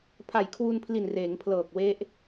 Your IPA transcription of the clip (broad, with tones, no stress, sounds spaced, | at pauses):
pʰ a˨˩ j kʰ w u˧ n pʰ l i˨˩ n r eː˩˦ ŋ pʰ l ɤː˨˩ k̚ w e˦˥ ʔ